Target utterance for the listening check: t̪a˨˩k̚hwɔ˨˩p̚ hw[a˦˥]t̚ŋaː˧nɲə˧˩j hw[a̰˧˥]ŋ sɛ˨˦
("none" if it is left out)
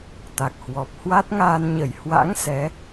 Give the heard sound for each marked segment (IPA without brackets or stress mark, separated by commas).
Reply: a˦˥, a̰˧˥